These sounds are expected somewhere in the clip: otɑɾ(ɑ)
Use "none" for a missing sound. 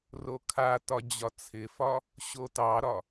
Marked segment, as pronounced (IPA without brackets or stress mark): ɒ